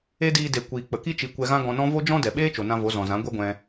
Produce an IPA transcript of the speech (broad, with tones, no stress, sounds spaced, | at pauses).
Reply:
e˦ d iː˧ d e˨ kʷ iː˨ k͡p ə˨ k i˦ t͡ʃ i˧ kʷ ɛ˧ ɣ ã˦ ɡ ɔ̃˧ n ɔ̃˦ v o˦ d͡ʒ ɔ̃˦ d ɛ˨ ɓ eː˦ t͡ʃ o˨ n ã˧ v o˨˦ z ɔ̃˨ z ã˨˦ ɡʷ ɛ˦ ɡʷ ɛ̃˧